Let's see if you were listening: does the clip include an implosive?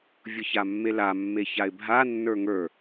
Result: no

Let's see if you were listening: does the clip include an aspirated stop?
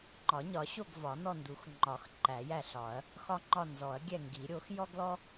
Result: no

